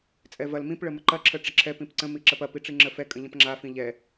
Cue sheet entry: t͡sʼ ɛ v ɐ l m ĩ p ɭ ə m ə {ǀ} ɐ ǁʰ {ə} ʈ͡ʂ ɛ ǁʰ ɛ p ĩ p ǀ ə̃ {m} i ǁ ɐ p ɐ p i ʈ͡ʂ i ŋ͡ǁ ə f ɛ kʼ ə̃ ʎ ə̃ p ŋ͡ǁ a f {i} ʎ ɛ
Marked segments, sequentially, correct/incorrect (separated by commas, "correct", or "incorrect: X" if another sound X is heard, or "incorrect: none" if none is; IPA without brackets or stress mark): incorrect: ǃ, correct, correct, incorrect: ĩ